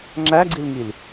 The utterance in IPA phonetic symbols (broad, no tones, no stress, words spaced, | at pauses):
ŋ͡ǁæɡ͡ǀilŋil